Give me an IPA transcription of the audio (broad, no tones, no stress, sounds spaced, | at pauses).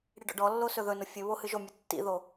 ɽ i ɖ ɔ̰ ɖ ɔ lː o s ɵ ð ɵ n ʊ fʲ ɵ β o h ɨ ʒ o mʲ ʊ tː ḭ ð o